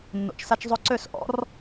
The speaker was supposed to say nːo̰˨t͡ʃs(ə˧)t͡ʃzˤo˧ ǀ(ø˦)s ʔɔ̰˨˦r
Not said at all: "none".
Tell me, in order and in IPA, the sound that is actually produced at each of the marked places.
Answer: a˧, ø˦˨

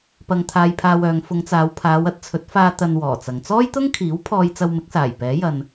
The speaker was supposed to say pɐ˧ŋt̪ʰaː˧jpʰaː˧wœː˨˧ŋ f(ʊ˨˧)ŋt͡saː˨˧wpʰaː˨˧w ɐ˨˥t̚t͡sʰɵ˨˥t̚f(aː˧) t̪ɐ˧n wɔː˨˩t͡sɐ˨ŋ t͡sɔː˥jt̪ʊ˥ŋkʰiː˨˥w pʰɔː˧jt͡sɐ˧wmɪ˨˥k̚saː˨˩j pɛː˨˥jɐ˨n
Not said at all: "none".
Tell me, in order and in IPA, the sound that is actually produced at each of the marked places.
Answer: ʊ˨˧, aː˧

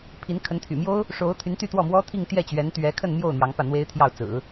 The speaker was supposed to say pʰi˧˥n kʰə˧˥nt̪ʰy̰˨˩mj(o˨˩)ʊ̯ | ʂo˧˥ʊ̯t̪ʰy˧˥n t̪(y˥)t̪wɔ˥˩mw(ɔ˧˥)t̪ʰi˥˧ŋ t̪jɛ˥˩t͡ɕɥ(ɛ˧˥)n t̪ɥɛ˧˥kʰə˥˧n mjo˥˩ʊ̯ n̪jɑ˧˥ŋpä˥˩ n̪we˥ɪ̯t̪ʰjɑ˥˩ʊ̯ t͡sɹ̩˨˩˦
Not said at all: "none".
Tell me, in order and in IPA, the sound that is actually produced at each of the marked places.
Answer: o˥, y˥˧, ɔ˥, ɛ˧˥

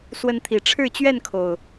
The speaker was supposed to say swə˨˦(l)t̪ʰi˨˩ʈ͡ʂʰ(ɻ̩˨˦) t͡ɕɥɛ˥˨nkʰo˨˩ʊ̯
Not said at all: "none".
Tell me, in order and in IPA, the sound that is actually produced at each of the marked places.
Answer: n, ɻ̩˥˨

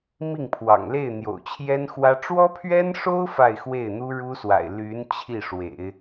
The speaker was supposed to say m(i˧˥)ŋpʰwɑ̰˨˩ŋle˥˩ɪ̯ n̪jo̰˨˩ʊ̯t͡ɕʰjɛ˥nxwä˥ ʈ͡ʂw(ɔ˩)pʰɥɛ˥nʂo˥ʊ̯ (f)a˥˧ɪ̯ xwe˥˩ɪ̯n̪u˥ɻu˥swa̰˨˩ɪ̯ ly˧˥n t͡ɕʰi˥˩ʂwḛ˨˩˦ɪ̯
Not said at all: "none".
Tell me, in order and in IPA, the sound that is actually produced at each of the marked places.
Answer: i˥˩, ɔ˥, f

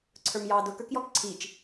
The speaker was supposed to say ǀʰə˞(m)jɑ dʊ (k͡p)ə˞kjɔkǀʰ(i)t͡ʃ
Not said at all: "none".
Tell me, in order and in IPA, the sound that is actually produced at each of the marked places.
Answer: m, k, i

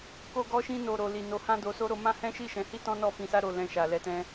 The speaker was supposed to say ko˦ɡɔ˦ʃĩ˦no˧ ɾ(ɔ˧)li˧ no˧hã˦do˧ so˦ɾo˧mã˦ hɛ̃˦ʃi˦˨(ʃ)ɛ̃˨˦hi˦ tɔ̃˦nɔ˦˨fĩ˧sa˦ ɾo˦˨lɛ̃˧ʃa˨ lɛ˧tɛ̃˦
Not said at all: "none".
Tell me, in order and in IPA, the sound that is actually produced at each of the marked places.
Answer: o˧, ʃ

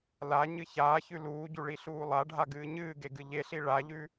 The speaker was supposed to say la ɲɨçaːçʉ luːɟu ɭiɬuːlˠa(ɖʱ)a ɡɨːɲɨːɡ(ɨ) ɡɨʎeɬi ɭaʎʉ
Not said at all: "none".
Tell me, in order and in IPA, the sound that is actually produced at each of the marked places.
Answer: ɖʱ, e

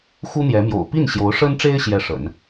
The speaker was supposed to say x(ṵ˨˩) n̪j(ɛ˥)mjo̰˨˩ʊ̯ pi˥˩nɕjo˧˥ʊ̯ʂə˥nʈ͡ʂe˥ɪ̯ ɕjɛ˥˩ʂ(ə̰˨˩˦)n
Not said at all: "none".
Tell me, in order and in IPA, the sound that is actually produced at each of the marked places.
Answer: u˥, ɛ˧˥, ə̰˨˩˦

